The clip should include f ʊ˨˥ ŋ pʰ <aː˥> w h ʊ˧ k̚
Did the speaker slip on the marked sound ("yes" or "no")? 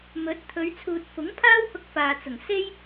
no